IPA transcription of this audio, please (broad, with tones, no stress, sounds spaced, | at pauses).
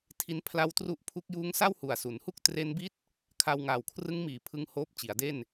tʰ i˦˥ n pʰ l a˦˥ w t r u˦˥ ʔ pʰ u˦˥ k̚ j uː˦˥ ŋ s a˥˩ w h u˨˩ a̯ s u˩˦ n h u˥˩ k̚ t r e˦˥ n b i˥˩ t̚ | kʰ a˧ w ŋ aː˨˩ w kʰ r ɯ˦˥ ŋ m iː˨˩ pʰ ɯ˧ ŋ h oː˦˥ p̚ t͡ɕ i˩˦ a̯ d e˥˩ n